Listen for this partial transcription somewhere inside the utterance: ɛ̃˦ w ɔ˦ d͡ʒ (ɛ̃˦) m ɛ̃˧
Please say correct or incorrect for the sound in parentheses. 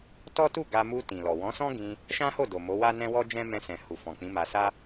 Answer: correct